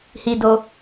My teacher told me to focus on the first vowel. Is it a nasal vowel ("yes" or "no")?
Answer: no